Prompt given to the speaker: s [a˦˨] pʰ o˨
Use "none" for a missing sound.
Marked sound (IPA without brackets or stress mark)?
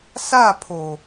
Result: a˦˨